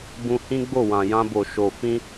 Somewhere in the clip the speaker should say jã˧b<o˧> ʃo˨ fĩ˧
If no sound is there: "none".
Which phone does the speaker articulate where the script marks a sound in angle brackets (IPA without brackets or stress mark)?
o˨